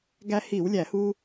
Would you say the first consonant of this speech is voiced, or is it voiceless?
voiced